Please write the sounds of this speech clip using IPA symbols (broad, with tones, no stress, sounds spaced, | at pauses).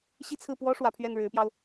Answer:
ɕ i˥˧ t͡sʰ ɹ̩˥˩ p w ɔ˥ ʂ w ä˧˥ pʰ ɥ ɛ˥˩ n ɻ ɻ̩˧˥ p j ɑ˧ ʊ̯